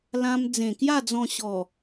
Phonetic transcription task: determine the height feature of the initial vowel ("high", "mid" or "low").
low